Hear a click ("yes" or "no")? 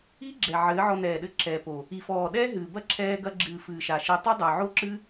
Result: yes